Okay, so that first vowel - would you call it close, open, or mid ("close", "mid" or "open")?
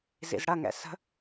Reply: close